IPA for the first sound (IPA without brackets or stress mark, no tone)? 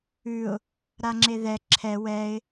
ʉ